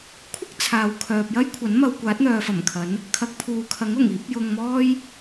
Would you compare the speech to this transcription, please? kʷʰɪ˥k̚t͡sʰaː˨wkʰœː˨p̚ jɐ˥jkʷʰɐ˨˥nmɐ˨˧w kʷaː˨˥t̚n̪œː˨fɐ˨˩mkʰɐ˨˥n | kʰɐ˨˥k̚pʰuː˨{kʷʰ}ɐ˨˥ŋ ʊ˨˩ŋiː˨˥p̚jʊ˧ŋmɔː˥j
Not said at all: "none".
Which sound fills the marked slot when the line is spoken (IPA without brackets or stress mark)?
kʰ